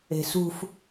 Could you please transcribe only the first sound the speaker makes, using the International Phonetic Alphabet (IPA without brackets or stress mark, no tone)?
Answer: e̤